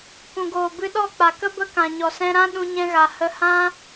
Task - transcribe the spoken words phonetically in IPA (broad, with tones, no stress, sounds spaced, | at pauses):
k ũ˨ ɡ oː˨ b ɨ˧ ɗ ɔ˦˨ k͡p a˨ k ə˦ b ə˦ k ã˨ ɲ ɔ˨ s ɛ̃˧ ɾ ã˦ ɗ ũ˧ ɲ ɛ̃˧ ɣ a˨ h ə˧ h ã˦